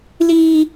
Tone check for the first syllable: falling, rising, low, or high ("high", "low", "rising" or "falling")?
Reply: low